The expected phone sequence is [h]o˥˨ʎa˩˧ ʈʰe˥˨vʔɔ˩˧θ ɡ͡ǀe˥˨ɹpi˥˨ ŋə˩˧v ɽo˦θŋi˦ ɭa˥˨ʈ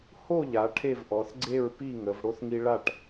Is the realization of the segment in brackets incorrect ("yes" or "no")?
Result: no